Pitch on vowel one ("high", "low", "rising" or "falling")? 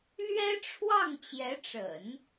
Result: high